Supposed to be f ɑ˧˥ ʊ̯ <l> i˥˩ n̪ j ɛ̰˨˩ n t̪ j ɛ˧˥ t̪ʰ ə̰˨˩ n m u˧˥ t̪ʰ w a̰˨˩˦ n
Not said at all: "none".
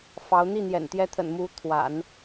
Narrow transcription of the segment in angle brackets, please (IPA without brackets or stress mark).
n̪